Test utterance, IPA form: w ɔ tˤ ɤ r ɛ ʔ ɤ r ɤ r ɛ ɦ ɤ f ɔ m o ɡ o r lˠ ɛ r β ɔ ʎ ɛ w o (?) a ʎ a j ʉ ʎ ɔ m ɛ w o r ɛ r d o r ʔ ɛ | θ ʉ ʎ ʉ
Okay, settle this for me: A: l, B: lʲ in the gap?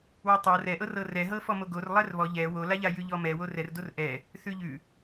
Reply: A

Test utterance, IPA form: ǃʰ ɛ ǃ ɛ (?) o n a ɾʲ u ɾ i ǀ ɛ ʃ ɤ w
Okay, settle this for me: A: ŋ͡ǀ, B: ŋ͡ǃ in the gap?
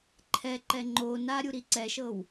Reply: B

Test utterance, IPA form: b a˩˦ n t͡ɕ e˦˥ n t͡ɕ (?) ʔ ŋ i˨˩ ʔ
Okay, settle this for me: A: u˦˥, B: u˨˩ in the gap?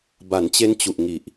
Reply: B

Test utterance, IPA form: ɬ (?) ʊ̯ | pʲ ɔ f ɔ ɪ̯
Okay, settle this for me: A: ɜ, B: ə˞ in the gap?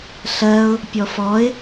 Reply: A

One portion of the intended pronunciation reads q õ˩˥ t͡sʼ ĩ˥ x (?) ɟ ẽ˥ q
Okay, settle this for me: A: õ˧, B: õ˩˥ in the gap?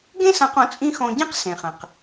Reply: A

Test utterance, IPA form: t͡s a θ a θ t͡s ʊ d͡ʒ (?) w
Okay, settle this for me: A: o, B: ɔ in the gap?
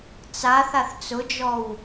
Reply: B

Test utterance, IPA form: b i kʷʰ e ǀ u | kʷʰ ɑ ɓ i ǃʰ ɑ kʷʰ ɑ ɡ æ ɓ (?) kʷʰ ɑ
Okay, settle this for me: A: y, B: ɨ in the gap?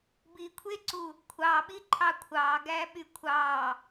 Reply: A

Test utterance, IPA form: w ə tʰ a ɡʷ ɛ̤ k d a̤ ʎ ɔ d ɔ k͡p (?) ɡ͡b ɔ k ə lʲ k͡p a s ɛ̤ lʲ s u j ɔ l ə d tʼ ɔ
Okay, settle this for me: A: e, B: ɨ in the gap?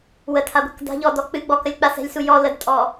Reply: B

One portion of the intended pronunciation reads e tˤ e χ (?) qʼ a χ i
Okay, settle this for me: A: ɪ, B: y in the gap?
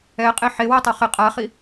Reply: A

